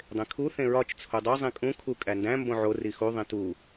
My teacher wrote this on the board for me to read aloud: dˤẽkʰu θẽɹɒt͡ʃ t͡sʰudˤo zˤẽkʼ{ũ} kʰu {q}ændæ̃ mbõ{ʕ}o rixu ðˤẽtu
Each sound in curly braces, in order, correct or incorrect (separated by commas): correct, incorrect, correct